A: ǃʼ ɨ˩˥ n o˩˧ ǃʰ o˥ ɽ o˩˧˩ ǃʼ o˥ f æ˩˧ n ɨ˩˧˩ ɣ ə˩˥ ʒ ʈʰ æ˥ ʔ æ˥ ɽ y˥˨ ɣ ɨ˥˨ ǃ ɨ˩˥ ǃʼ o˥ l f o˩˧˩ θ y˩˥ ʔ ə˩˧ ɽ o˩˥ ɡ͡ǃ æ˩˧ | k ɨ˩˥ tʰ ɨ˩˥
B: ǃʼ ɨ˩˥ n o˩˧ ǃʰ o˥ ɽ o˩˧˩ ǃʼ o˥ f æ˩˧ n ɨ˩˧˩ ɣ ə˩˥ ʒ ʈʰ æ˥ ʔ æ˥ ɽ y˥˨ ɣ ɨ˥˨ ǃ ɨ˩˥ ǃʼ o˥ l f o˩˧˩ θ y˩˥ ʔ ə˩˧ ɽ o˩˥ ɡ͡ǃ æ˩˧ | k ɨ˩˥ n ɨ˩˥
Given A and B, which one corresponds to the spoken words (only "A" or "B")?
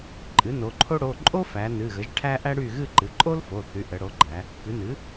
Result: B